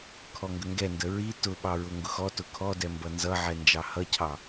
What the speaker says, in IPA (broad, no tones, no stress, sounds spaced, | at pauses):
kʰ ɔ ŋ ɡ ə ŋ ɡ ɛ n d ə ɹ i t ʊ ɓ ɑ ɹ ʊ ŋ ɡ ʊ x ɔ t ʊ kʰ ɔ d ɛ m b ʌ n z ʌ ʕ ɛ n d͡ʒ ɑ h ʌ cʰ ɑ